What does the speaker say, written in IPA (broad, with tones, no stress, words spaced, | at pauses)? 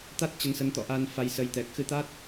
t̪a˦˥t̚ t͡ɕə˨˦nsə˨˦nt̪ɔ̰˧˨ʔa˧n fa˧j sə˨˦jt̪ɛ˨˩k̚ xɨ˨˦t̪a˦˥t̚